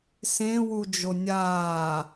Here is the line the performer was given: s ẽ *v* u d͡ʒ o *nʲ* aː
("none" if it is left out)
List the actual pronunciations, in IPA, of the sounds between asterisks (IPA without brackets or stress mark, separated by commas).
w, nʲ